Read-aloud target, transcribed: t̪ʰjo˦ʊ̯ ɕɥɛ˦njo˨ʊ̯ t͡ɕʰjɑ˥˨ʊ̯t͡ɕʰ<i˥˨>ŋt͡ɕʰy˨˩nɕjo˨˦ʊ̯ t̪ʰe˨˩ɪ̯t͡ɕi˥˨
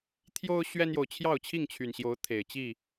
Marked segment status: correct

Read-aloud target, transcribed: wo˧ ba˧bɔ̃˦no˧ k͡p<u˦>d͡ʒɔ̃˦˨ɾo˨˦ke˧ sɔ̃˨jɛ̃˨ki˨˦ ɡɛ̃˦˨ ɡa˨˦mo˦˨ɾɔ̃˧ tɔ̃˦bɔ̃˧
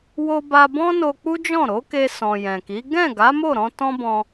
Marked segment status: correct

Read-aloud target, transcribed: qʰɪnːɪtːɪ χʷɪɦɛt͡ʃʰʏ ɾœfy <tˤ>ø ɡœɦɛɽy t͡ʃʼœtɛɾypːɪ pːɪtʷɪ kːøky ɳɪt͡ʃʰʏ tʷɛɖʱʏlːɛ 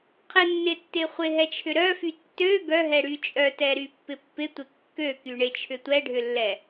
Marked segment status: incorrect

